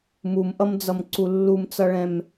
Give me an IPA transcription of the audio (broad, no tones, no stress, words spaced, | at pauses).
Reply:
mumʔʌmd͡zʌmǀu lːumt͡sʌɭɛ̃m